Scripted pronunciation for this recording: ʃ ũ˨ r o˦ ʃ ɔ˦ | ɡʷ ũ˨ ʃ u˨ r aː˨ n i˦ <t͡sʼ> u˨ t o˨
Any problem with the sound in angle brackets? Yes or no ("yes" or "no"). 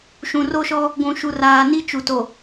yes